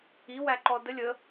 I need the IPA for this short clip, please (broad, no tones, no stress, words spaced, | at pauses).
iwæǃɔ dəlʲ ə